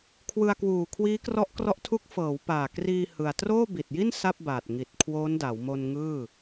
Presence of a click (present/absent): absent